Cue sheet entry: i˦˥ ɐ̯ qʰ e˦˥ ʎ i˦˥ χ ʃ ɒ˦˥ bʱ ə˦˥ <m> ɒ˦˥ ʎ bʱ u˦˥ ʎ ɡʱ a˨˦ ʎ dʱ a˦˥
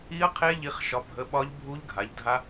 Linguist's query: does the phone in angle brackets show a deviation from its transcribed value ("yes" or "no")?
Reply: yes